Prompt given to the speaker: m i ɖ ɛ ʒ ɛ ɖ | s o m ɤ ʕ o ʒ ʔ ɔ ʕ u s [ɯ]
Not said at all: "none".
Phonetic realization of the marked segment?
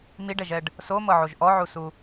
u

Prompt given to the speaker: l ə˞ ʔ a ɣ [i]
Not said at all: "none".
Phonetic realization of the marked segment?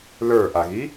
i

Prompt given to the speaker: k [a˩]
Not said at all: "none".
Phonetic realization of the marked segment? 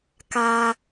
a˩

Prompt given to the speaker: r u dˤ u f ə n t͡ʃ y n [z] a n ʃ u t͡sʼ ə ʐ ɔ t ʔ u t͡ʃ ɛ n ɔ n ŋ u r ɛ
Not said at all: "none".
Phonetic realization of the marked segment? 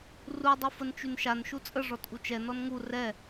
ʃ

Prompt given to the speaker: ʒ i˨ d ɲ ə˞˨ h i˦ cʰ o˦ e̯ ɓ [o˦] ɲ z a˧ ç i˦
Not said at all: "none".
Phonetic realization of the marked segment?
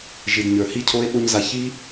o˦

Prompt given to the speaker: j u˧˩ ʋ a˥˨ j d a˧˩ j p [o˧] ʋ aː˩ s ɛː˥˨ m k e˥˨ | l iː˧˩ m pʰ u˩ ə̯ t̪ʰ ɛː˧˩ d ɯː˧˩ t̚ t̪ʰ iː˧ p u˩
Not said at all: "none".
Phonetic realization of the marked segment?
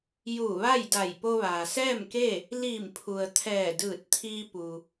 o˧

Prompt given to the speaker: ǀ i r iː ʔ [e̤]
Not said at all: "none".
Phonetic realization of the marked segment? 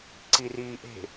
e̤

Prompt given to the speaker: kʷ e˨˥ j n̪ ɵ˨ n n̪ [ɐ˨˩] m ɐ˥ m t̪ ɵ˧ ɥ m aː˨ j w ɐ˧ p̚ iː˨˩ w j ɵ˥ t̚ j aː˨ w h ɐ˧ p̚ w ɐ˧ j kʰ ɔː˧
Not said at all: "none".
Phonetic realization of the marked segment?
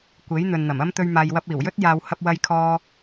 ɐ˨˩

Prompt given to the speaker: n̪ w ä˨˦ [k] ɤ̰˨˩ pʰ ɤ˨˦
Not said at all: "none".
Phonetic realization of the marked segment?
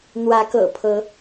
k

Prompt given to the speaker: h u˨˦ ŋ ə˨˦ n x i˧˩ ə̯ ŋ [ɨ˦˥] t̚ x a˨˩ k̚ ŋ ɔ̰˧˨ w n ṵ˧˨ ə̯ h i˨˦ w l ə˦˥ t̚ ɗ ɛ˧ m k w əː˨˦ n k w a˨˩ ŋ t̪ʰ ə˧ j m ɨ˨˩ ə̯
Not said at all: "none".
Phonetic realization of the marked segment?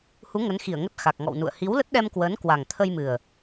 ə˦˥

